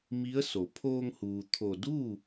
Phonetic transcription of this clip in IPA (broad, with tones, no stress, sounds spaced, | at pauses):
m i˧˥ ə̯ s o˩˧ pʰ oː˧ ŋ h uː˩ t̪ʰ o˧˩ d uː˥˨